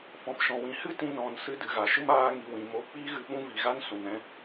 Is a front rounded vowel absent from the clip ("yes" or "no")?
yes